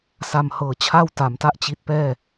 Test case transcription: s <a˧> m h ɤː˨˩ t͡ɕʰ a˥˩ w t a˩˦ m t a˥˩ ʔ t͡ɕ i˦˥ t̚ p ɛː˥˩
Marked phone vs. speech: correct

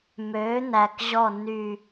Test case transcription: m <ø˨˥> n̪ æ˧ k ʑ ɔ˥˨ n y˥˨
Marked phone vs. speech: correct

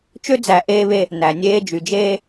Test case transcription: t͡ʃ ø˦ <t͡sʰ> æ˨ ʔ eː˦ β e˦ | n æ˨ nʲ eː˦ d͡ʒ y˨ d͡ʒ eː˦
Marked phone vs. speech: incorrect: d͡z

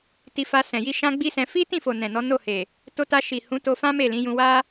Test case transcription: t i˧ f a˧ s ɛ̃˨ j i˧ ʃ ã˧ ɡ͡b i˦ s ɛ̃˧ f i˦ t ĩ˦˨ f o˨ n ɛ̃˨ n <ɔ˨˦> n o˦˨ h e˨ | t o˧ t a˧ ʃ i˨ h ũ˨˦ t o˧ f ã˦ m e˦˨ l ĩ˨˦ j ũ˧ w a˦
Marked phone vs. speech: correct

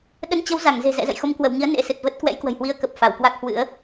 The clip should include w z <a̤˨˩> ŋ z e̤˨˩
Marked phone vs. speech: incorrect: a˧˩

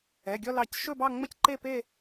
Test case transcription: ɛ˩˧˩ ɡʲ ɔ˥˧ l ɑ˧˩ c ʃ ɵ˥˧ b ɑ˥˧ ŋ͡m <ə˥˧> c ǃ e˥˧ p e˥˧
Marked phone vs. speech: correct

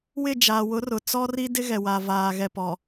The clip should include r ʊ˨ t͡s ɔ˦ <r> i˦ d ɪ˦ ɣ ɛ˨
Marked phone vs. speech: correct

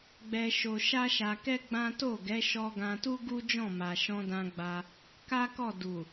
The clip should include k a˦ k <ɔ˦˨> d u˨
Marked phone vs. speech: correct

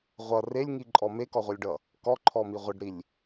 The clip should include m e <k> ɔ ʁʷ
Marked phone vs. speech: correct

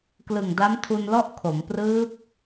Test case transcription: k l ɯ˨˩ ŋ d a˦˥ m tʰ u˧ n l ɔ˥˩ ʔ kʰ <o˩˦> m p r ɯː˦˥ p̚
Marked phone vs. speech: correct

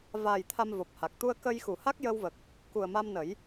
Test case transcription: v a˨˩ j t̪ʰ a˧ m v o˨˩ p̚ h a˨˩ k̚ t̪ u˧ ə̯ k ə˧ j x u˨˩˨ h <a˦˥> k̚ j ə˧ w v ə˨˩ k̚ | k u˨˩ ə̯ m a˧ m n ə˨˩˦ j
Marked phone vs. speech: correct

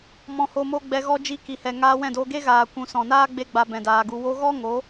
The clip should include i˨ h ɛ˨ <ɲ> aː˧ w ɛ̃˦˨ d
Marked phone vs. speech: incorrect: ŋ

